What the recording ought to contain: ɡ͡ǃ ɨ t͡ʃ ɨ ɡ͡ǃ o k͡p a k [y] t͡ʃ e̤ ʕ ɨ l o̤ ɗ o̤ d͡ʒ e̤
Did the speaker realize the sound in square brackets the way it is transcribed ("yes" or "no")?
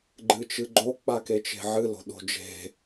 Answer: no